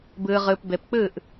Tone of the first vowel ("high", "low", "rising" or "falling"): low